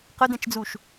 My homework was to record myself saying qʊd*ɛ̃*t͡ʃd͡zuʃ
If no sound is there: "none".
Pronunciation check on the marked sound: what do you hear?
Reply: ɛ̃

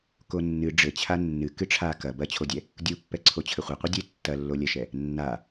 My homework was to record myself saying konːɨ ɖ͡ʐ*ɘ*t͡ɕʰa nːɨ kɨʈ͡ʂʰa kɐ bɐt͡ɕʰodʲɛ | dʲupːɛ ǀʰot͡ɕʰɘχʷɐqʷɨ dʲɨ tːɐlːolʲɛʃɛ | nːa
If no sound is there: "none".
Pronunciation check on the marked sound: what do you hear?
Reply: ɘ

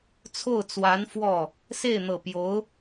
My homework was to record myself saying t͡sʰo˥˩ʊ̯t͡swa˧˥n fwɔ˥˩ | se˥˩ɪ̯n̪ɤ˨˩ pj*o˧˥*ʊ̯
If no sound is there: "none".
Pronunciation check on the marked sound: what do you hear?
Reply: o˧˥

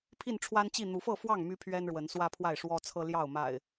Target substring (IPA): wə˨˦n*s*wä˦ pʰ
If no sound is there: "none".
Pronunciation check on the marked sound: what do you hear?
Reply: s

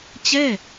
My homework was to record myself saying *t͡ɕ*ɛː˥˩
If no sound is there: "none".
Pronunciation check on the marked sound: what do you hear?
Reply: t͡ɕ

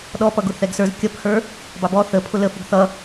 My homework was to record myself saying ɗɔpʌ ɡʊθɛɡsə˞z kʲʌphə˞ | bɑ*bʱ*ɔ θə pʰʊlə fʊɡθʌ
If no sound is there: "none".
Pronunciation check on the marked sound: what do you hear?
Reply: b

